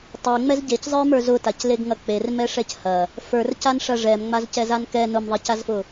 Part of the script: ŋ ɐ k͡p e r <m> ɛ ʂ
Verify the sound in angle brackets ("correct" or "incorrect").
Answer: correct